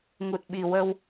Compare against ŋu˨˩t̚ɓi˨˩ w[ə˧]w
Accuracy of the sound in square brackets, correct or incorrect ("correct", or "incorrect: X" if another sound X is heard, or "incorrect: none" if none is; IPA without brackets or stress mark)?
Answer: correct